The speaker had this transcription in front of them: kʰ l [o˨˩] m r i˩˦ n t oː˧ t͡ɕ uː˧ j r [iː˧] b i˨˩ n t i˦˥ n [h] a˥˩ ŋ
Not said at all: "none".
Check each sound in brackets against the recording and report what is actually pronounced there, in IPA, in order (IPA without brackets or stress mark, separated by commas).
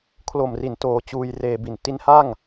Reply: o˨˩, eː˧, h